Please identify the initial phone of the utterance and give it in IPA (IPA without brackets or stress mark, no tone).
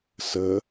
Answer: s